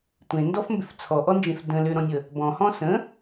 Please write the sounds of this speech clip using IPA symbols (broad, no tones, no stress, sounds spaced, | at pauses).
tʷ ẽ n d ɔ f m b ʏ f t͡sʰ ɔ ʔ ɔ n d͡ʒ ẽ f d ə̃ l ʏ ɾ ɔ̃ nʲ ə | b ɔ̃ h ɔ̃ s ə̃